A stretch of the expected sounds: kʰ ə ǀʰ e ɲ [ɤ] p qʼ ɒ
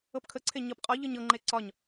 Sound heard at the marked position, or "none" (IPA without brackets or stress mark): ɤ